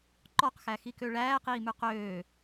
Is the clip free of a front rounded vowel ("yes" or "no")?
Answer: no